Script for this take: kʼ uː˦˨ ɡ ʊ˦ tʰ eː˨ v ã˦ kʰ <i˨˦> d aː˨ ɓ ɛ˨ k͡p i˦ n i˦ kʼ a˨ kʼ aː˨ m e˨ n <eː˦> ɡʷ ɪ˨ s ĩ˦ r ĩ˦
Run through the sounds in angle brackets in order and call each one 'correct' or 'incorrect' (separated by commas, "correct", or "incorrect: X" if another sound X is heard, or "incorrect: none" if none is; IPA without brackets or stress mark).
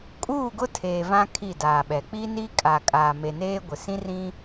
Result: incorrect: i˦˨, correct